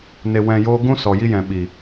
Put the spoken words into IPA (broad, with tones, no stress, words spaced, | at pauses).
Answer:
ne˧wɛ̃˧joː˦ ɡũ˦sɔ˨ji˧jɛ̃˨ ɓi˨